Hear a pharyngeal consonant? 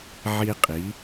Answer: yes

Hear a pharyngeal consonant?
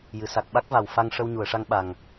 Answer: no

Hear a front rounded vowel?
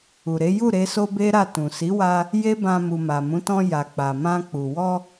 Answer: no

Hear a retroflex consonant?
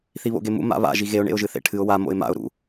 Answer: yes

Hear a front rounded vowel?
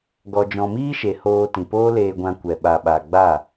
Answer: no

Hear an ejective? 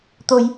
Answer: no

